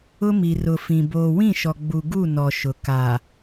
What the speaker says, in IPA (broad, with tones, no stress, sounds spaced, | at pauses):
ʊ˦ m i˨ r ʊ˨ f ĩ˨ b oː˨ w ĩ˦˨ ʃ ɔ˨ ɡ͡b u˨ ɡ u˦˨ n ɔ˨ ʃ ʊ˨ k a˨